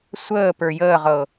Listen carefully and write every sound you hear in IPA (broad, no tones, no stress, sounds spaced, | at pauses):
sʷ əː p ə˞ j əː ʁ ɤ